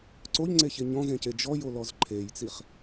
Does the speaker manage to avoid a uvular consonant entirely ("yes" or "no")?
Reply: no